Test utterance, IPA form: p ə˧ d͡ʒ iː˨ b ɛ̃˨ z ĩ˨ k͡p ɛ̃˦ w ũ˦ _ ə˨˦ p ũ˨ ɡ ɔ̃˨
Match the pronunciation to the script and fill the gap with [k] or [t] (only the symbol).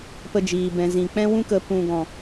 k